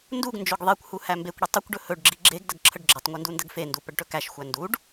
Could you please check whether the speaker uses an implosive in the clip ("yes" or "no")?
no